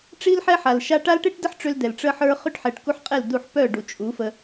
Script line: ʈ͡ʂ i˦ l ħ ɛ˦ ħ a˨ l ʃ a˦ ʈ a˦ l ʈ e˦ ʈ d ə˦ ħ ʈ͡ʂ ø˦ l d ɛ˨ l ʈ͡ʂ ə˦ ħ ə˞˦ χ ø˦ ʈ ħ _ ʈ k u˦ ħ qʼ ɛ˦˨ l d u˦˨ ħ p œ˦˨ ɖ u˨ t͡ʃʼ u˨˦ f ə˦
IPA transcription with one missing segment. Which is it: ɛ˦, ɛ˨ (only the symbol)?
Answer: ɛ˨